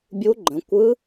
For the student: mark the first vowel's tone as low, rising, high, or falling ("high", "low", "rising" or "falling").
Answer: rising